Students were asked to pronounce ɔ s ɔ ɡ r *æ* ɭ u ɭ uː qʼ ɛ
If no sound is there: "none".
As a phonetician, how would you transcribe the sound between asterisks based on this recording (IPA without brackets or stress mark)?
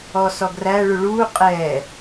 æ